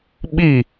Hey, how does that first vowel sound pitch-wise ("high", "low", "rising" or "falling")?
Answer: falling